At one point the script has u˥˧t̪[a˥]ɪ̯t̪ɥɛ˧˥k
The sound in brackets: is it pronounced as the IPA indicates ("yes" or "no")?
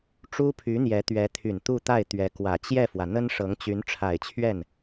no